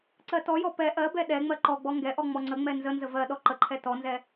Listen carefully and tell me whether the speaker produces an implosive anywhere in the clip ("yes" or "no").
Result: yes